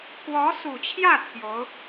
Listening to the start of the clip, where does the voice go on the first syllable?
rising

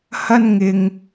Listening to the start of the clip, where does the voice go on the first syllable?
high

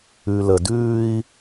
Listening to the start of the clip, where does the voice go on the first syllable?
low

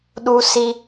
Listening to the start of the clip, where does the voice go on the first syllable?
high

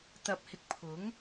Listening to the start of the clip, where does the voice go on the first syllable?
low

